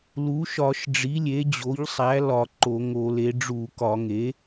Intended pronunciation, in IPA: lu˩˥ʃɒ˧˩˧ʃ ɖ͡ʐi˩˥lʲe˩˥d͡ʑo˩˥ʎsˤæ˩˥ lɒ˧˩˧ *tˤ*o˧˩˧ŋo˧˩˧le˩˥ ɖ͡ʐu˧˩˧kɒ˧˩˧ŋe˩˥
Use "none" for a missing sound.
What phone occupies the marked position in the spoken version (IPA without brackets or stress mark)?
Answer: ǃ